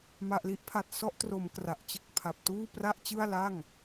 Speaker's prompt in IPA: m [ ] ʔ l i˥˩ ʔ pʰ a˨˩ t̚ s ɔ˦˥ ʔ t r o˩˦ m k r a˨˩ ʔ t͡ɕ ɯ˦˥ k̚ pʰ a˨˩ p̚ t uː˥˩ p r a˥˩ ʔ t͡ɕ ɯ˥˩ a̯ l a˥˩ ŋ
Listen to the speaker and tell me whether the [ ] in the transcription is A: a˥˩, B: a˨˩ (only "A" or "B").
B